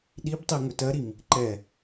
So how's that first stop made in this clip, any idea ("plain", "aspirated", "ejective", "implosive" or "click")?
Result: implosive